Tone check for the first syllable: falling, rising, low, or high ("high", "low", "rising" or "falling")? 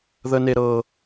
high